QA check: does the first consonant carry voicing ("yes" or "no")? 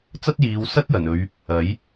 no